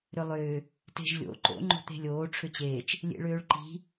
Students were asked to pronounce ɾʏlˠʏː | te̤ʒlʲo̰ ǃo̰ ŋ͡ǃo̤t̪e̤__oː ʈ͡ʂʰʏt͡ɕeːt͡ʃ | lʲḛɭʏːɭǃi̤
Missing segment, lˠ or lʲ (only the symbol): lʲ